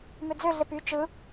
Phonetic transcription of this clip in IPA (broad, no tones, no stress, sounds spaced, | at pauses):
m ø d͡z ø ɮ e p y t͡ʃ ɯ